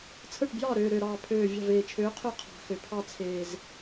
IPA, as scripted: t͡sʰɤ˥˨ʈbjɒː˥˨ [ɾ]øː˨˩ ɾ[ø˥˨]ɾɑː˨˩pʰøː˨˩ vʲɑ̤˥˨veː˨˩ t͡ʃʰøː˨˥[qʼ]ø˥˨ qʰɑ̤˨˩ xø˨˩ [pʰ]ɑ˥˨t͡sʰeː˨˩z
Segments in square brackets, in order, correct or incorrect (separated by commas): correct, incorrect, incorrect, correct